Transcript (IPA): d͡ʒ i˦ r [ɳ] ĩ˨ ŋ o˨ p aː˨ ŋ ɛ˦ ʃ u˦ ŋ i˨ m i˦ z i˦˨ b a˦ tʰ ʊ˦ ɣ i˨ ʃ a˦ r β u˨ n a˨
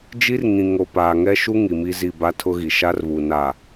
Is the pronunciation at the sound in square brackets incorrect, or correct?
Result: incorrect